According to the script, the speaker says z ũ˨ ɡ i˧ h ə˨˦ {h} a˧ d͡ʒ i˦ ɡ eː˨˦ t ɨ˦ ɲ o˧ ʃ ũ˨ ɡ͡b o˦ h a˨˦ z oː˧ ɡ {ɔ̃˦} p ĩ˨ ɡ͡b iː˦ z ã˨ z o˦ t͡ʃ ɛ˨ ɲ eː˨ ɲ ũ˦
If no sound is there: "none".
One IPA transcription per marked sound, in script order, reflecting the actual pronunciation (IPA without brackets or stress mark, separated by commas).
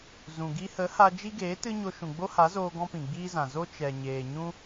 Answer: h, ɔ̃˦